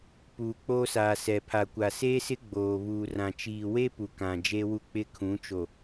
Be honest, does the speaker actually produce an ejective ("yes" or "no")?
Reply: no